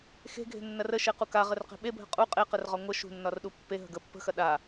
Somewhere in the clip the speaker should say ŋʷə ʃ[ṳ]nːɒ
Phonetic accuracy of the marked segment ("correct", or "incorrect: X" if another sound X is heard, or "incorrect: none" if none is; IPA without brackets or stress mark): correct